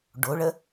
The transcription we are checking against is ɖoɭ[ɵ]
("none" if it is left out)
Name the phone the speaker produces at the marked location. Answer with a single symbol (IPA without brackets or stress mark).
ə